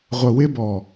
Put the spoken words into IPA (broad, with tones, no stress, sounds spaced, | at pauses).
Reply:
ʁʷ ə˨ w ɪ˧ b ɔ˨